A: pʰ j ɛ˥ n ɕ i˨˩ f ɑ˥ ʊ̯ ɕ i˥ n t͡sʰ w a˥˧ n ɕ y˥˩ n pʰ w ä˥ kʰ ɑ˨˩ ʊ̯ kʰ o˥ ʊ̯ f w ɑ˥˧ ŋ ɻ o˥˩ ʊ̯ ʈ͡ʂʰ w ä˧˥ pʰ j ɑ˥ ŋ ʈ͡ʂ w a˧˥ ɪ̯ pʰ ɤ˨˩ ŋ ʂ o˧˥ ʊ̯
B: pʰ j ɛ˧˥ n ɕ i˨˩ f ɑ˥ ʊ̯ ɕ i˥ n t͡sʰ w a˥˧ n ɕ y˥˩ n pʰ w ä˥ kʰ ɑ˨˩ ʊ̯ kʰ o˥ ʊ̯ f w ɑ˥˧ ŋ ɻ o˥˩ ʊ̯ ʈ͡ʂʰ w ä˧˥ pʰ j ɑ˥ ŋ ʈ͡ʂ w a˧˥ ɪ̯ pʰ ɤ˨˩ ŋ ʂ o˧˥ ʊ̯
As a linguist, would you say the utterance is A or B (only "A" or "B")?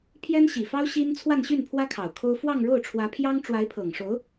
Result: A